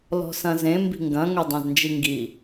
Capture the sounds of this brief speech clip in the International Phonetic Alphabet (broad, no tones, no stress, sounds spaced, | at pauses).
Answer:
l ɔ̤ s ɐ̃ z ẽ m b i̤ ŋ ɡ ɐ̃ ŋ ʊ dˤ æ̃ z n d͡ʒ i ŋ ɡ i